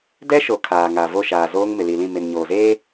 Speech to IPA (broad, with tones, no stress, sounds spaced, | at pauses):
d ɛ˦ ʃ o˨ kʰ aː˨ ŋ a˨ v o˦˨ ʃ aː˨ z oː˦ ŋ m ɪ˨ l i˨ l ĩ˦˨ m e˨ n ɲ oː˨ z eː˦